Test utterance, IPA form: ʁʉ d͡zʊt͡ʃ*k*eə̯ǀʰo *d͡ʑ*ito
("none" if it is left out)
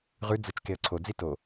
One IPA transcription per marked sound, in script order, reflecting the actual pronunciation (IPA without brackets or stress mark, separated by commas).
k, d͡z